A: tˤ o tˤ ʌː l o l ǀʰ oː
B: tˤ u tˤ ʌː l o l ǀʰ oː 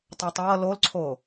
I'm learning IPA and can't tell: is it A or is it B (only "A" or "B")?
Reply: A